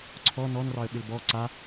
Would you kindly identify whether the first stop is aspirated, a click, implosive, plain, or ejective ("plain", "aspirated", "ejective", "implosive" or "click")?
click